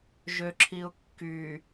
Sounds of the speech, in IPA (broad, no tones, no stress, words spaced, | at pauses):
ʒøǁʰiʊ̯kːy